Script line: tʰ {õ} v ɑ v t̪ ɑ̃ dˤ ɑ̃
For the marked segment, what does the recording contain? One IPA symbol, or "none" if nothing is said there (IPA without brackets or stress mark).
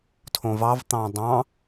õ